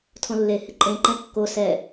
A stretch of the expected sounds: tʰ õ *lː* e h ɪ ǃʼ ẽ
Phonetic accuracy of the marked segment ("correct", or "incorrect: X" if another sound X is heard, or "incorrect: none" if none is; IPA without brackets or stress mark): correct